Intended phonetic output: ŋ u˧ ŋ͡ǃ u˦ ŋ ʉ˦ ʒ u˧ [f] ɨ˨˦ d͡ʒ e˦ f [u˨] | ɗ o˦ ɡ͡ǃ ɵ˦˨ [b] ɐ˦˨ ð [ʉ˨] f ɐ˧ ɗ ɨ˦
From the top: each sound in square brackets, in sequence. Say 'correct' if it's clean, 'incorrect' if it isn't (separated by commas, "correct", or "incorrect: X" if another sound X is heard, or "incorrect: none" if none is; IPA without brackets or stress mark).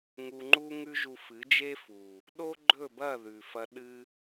correct, correct, correct, correct